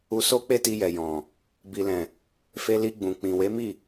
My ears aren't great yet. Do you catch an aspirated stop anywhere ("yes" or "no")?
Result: no